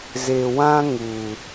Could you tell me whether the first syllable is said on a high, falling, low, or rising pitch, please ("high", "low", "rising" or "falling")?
low